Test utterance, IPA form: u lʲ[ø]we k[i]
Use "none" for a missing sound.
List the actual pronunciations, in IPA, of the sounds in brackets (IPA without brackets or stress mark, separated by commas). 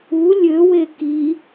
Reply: ø, i